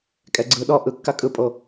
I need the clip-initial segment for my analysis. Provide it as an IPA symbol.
kʼ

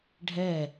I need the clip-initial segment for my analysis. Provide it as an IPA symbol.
ɖʱ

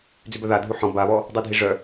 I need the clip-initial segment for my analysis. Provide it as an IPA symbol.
d͡z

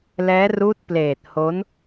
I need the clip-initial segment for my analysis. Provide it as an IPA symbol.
l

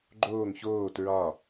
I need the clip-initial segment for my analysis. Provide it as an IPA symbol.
ɡ͡ǃ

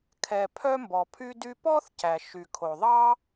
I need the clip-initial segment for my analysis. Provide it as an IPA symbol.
kʰ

